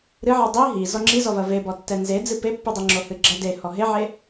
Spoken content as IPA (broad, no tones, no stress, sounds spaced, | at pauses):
ɾ ɨ ʕ ɨ dˤ i ɦ i z ɔ ŋ͡ǁ i z ɔ v ɐ v e b ɔ tː ɛ n z e d͡z ɨ p e pː ɨ dˤ ɛ ŋ͡ǁ o h ɨ ɡ͡ǁ ɐ d e h ɔ ɦ e ʕ e